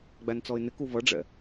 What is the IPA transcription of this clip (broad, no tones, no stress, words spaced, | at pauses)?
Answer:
ɡ͡bænt͡sɔɪ̯nɪ kuvʌɖ͡ʐɛ̰